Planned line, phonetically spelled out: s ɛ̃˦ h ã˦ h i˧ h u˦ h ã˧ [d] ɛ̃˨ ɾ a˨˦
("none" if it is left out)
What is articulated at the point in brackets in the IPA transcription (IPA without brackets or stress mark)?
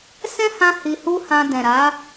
d